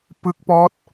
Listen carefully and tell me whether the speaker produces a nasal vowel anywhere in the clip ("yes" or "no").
no